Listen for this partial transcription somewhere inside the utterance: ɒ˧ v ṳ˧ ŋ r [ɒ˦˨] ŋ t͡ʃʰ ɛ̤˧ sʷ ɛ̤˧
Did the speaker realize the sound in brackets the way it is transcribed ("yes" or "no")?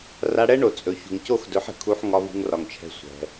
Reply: no